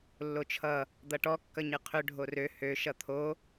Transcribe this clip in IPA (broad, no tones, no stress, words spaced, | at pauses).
lːot͡ʃʰʌ | d̪ʌʈɔ kːʌɲɨqʰʏ ɖʱorø hø ʃʌt̪ʰo